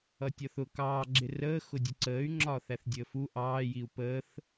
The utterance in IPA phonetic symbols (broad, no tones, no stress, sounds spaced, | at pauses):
ʌ tʲ ɒ θ ʊ k ɑː ɡ͡ǁ ɪ r əː x ʊ dʲ ə ǀ əː y̯ ŋ͡ǁ ɒː θ æ θ dʲ əː f u ʔ ɑː j i u̯ p əː θ